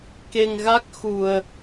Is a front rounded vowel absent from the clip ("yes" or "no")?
yes